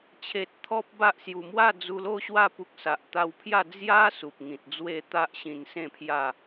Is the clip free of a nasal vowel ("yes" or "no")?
no